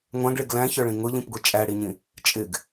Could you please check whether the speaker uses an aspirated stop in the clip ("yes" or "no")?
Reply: no